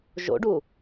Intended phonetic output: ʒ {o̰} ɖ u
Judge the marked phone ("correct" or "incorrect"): correct